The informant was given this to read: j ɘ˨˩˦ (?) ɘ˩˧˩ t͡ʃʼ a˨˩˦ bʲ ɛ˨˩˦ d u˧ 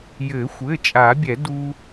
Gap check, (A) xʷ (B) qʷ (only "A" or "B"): A